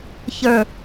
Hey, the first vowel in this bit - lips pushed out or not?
no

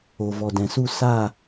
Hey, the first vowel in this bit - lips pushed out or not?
yes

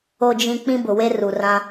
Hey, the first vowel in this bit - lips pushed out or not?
yes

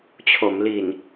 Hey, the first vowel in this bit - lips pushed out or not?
yes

